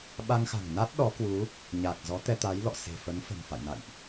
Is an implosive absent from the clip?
no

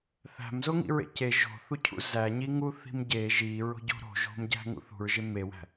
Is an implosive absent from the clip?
yes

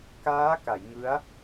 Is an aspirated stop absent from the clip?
yes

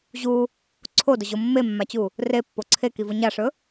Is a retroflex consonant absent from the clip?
no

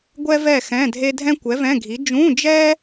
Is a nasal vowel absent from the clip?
no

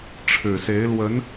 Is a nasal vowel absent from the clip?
yes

